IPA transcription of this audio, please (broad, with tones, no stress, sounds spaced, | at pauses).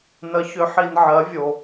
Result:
n ə˩˥ ç ʏ˩˥ ħ i˨ n ʕ ɜ˩˥ vʲ o˨